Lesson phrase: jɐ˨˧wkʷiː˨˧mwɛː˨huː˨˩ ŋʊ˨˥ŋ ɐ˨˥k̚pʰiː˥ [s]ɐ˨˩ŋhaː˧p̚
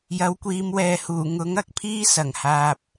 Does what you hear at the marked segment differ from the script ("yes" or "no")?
no